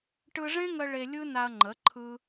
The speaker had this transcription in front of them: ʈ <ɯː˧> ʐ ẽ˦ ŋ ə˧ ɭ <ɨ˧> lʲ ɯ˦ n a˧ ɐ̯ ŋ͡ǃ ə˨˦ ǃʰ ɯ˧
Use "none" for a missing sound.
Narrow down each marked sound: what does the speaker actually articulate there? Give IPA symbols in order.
ɯ˧, e˧

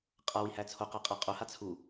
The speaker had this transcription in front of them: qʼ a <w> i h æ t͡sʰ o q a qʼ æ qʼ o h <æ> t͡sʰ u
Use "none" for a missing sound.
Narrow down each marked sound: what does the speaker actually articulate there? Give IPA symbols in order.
w, a

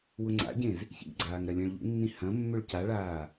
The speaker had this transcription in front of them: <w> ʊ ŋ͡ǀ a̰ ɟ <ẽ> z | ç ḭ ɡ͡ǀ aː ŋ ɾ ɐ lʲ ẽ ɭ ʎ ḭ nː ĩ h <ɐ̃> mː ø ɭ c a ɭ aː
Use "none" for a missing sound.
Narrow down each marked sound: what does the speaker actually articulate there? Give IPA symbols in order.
w, ẽ, ɐ̃

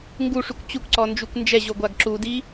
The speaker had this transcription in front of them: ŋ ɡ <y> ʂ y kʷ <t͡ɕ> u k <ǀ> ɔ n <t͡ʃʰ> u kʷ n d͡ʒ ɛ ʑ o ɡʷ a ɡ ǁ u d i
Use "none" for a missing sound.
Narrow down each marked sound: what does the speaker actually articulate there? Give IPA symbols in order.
u, t͡ɕ, ǀ, d͡ʒ

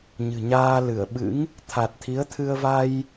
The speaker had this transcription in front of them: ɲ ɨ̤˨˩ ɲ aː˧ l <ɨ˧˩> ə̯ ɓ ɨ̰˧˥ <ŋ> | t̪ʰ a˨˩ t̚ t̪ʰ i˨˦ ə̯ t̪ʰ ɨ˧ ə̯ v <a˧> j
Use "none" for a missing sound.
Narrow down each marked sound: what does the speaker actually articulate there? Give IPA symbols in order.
ɨ˧˩, ŋ, a˧

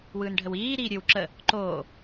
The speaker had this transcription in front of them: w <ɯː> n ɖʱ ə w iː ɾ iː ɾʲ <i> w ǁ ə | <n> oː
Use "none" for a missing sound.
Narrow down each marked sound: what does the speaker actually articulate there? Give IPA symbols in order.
ɯː, ɨ, ǃ

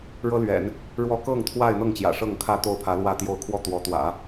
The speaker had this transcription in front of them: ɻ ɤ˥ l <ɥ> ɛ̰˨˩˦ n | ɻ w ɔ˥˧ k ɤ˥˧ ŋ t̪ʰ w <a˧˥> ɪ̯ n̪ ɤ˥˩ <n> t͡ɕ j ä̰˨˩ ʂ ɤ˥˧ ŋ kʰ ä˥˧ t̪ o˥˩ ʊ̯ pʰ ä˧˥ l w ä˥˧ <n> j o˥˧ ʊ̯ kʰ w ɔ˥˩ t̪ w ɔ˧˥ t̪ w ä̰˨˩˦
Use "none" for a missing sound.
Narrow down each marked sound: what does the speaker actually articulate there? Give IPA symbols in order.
ɥ, a˥˧, ŋ, t̪

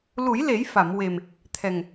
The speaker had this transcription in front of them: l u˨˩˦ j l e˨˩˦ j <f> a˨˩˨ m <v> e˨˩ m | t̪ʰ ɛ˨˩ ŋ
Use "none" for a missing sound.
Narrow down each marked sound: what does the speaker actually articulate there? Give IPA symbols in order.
f, w

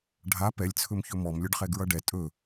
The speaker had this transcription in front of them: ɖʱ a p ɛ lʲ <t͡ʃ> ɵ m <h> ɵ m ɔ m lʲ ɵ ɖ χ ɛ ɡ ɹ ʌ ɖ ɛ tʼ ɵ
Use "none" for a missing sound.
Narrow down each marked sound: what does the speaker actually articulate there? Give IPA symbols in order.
t͡sʰ, ç

